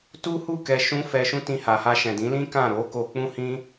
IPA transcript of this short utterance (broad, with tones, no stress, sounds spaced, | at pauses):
t u˦ h u˦˨ k ɛ˧ ʃ ũ˦ f ɛ˧ ʃ ũ˦ t ĩ˧ h a˨ h a˧ ʃ ɛ̃˨ d ĩ˨˦ l ĩ˦ k ã˦˨ ɾ o˨˦ k o˧ k͡p ũ˦ h ĩ˦